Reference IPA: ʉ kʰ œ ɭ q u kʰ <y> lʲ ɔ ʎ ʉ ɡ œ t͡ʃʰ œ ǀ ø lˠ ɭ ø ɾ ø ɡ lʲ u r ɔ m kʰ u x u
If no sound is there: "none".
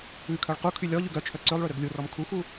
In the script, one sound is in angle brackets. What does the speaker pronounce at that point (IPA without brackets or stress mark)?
y